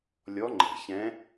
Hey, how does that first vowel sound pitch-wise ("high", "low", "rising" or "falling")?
rising